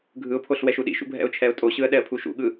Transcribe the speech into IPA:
ɡʱɯʊ̯pʰoɬ wɛʃuɗḭʃṵ bʱɛ̰ʊ̯t͡ʃʰɛʊ̯tʼoɕɯə̯ ɗɛə̯pʰuʃṵɠɯ

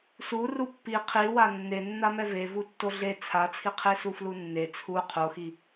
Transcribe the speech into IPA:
su rupːi qʰiwa nːenːamɛ vevu tːoɮe t͡sʰat͡sʰiqʰesu flunːe t͡sʰu qʰoxi

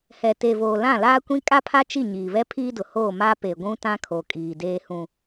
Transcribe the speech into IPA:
hɛ˨te˨voː˨ lã˦˨laː˦kʷĩ˦ kʼa˦pʰa˦t͡ʃi˦˨ ɲiː˨βɛ˦pʰiː˦dʊ˨ hoː˦˨ma˦ pe˨ɡʷũ˦ tã˦kʰo˨kʼiː˨ deː˦hũ˦

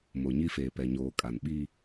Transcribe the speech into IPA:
mo˨ɲi˦feː˨ pɛ˨ɲoː˨kʼa˨n ɓiː˦

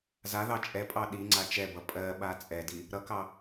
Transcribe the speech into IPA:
zaðɑ t͡ʃʼɛpʼɑ ɗiŋ͡ǀa t͡ʃɛbʌ pʼɜɓa t͡sʼɛdi | ɾʌkɑ

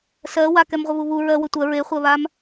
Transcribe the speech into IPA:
sɜ wa kɛmʁʷəβuβu ɹɜwɵ tʷɜ ɹeχʷɜβam

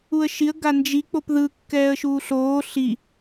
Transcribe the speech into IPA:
uə̯ʃiə̯ ɡand͡ʒi k͡popðɯ kːɛːə̯ʃuːɬoː ɬi

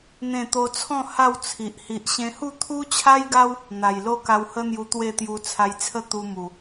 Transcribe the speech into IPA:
n̪ẽ˥˧t̪o˦ t͡sʰɔ̃˥˧ ha˥˧w t͡sʰi˨ʔ hi˨ʔɕẽ˧hu˥˧ t̪ʰu˦t͡ɕʰa˦jɡa˦w | n̪a˨˩jlo˦ka˧whə˦ n̪ju˧t̪we˥˧t̪ju˧ t͡sʰa˧jt͡sʰə˥˧ t̪u˧ mu˨˩

